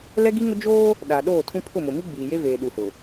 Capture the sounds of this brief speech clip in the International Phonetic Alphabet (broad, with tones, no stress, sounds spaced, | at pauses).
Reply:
l ɛ˦ ɡ i˦ ŋ ʊ˦ d͡ʒ oː˦ | ɗ a˨ ɗ oː˦˨ tʰ ũ˦ pʰ ʊ˦˨ m ʊ˨ m i˦ ɡ͡b iː˨ j e˦ v eː˨ ɗ u˨ h ʊ˨